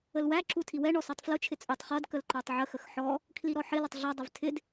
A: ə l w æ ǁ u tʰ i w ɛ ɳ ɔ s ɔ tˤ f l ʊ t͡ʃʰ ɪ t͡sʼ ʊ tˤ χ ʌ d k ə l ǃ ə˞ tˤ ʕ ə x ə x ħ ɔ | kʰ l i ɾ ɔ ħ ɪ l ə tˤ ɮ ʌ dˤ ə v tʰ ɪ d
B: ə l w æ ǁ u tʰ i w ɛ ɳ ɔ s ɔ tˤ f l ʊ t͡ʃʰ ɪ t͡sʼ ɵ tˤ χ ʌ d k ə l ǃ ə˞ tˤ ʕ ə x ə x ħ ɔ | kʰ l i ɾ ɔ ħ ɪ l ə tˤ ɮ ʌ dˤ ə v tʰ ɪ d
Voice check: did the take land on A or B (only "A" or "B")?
A